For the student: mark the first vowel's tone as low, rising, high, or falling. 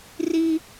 high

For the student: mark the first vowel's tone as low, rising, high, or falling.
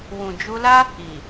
low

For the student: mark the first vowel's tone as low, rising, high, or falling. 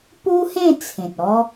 high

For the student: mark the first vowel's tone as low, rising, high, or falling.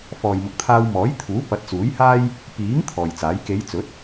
low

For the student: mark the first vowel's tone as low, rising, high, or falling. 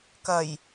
low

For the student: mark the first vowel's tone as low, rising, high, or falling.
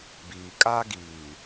low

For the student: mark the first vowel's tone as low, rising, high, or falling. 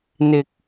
low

